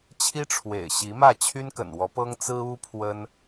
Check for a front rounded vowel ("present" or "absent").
present